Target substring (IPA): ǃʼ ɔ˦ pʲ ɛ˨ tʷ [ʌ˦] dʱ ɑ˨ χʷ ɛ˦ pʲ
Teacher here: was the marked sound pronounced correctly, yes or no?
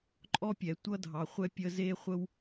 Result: yes